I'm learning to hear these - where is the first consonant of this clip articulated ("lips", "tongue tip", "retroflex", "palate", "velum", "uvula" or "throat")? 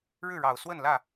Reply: retroflex